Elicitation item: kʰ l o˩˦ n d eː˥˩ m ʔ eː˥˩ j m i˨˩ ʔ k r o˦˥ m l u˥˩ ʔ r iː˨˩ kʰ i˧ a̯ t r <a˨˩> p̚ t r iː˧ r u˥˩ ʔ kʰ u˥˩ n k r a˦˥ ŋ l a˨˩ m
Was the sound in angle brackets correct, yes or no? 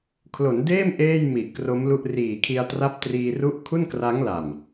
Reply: no